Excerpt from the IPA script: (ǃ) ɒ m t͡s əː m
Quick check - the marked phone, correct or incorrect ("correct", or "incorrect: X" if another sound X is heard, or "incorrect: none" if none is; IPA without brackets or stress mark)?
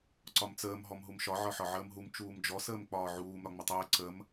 incorrect: ǀ